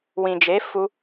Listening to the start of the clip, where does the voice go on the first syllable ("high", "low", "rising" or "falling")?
low